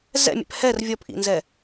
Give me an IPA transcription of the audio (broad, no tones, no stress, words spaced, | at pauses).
zɛ̰mʲɛ̰p hɛr vʲɔpʔḭnzɛ